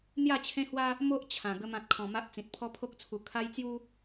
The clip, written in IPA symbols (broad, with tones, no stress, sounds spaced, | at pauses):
n̪ j a˥˧ t͡ɕʰ ẽ˦ h w a˦ | m o˦ ʔ t͡ɕʰ ã˨˩ ɡ ə˦ m ã˦ t̚ kʰ ɔ̃˧ m a˦ ʔ t͡s ĩ˨ t̚ pʰ ɔ˦ pʰ o˦ k̚ t͡sʰ u˧ kʰ a˦ j t͡s j u˦